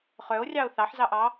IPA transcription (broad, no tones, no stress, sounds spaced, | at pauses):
χ œ o̯ rʲ ɑ o̯ θ ɑ ħ z ɑ ʔ ɑ